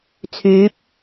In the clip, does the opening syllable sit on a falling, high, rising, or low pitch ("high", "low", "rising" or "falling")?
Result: rising